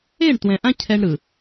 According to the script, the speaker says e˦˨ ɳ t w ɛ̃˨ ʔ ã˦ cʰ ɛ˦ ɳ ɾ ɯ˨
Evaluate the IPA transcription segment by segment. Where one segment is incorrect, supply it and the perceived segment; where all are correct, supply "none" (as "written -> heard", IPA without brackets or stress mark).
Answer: none